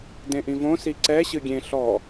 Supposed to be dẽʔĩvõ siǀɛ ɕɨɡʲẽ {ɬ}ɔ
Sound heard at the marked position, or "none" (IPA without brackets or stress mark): ɬ